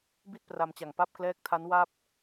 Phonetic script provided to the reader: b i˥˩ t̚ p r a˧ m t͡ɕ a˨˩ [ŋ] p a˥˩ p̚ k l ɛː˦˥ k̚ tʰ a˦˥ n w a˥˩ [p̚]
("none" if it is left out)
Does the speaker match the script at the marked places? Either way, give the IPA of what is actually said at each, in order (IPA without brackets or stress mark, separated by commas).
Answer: ŋ, p̚